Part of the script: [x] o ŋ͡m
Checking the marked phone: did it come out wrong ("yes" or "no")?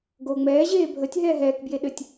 yes